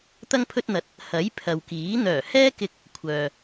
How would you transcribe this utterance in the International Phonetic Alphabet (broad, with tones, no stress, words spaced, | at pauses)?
t̪ɐ˧ŋpʰɵ˧t̚n̪ɐ˨˥t̚ | hɐ˨˥j pʰɐ˨wkiː˨˥ n̪œː˨˩hɛː˥kɪ˧k̚ | kʷʰœː˨